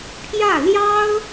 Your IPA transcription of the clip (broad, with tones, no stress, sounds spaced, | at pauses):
pʰ j ä˥˩ l j ɑ˥ ʊ̯